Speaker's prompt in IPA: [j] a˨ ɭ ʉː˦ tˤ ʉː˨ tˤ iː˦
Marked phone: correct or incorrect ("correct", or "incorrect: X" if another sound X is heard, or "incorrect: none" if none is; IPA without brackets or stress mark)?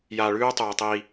correct